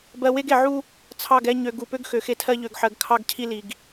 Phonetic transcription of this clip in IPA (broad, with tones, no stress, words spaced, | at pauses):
bɜ˨we˦ɡe˨ ʕu˦ | t͡sʰɑ˦˨ɡɛ˦ ɲø˨ ɡu˨pø˦ɡ xø˨xe˦tʰɜ˦ ʎø˨ɡħɜ˨ɡ kʰɑ˦ɡcʰi˦li˨ɡ